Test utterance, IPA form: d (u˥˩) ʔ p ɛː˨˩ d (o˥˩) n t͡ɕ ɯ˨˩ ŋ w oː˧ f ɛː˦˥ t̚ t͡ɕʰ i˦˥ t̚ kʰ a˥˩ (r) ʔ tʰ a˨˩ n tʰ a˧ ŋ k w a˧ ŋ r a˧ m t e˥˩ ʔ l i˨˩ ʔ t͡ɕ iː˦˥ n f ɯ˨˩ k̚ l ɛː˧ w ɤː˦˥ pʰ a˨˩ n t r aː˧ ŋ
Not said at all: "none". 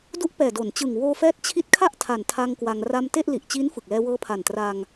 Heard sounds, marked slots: u˦˥, o˩˦, none

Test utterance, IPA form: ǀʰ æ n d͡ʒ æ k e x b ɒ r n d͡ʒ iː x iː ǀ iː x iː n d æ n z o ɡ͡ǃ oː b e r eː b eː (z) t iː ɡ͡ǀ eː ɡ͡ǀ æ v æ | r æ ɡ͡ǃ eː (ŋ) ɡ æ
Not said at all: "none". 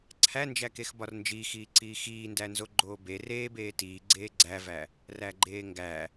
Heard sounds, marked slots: none, ŋ

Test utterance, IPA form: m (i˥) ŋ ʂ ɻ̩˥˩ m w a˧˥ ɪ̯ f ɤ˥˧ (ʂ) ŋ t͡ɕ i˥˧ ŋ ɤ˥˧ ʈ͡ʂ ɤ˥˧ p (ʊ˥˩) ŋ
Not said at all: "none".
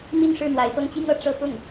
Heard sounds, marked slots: i˥˧, none, ʊ˥˩

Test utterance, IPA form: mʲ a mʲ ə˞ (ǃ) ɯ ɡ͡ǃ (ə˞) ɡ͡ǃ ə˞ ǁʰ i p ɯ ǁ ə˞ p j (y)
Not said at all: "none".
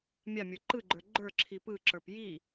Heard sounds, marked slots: ǃ, ə˞, i

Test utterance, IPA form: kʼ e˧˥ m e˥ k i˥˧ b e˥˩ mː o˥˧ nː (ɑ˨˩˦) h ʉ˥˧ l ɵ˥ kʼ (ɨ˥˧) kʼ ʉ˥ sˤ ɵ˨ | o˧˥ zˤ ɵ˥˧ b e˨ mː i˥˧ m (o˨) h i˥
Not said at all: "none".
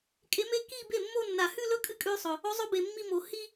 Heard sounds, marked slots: a˨˩˦, ɨ˥˧, o˨

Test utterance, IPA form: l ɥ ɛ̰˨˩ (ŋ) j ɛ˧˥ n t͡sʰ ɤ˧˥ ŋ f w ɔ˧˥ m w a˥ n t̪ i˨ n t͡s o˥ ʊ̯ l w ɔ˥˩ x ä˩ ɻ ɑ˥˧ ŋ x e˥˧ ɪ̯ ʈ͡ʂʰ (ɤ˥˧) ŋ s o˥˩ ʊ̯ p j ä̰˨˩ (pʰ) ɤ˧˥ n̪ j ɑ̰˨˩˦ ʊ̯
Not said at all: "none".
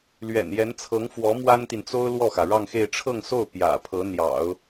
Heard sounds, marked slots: n, ɤ˥˧, pʰ

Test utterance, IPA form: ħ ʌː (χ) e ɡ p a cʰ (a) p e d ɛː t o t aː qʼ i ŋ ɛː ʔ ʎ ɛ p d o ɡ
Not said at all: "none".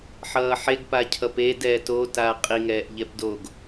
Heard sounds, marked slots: ħ, ʌ

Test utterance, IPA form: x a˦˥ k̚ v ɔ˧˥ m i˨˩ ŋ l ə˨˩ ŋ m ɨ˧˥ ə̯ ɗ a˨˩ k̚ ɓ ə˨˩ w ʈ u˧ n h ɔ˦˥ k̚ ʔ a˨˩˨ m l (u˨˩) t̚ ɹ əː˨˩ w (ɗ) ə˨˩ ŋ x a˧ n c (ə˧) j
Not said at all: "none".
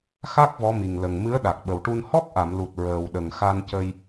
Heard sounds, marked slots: u˨˩, ɗ, ə˧

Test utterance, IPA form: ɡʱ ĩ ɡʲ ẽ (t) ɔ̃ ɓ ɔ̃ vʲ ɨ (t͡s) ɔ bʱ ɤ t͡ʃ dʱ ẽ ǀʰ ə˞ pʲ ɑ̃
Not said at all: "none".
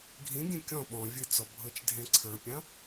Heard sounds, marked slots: kʲ, t͡s

